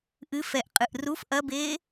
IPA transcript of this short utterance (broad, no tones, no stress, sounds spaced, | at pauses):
ʔ ɨ f ɛ ʔ qʼ ɨ ʔ r u f ʔ ɐ b eː